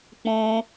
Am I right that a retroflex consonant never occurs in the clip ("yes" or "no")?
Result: yes